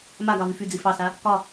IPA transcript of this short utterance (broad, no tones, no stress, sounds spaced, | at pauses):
m a ɡ ɑ v y f y d͡z i f ɑ s a | k ɒ